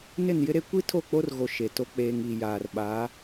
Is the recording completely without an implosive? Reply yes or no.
no